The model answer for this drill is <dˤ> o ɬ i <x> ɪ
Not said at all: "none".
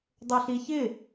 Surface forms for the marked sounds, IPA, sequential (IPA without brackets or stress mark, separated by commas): dˤ, ç